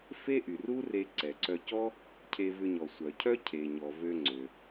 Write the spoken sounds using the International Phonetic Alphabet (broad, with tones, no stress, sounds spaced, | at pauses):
f e˥ ʔ y˩ r u˥ r e˧ ǀ ɛ˩ ǀ œ˧ c ɔ˥ | cʰ e˧ v ʏ˧ ɲ ɔ˩ sʷ œ˩ cʰ œ˥ cʰ e˩ ɲ ɔ˩ v ø˧ ŋ͡ǀ ø˩